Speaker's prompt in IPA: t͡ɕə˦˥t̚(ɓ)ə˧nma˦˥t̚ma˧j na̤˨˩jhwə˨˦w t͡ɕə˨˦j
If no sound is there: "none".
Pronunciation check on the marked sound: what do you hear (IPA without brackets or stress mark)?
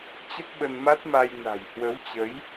ɓ